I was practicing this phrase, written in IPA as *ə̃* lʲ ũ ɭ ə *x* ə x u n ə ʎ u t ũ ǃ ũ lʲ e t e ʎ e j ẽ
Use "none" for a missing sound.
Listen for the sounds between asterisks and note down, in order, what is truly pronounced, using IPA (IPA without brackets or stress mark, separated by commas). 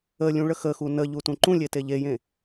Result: ə, x